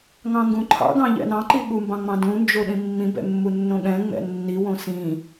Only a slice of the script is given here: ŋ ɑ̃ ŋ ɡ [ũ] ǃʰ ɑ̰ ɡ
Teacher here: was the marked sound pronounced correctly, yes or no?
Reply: yes